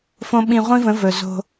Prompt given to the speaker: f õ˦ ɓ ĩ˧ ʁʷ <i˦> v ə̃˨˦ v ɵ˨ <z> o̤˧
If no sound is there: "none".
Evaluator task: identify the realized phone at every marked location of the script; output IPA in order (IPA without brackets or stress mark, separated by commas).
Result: ĩ˦, z